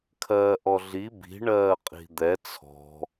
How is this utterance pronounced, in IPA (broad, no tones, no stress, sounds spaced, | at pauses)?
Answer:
kʰ ɜː ʔ ɔ ɮ i b i̤ ɳ ɜː qʼ i̤ d̪ ɛ t͡sʰ ɔ̤